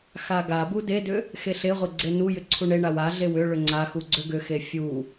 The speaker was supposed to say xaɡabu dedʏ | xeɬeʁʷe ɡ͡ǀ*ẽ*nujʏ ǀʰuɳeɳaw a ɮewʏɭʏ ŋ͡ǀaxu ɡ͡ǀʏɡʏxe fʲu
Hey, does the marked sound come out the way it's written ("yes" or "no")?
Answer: no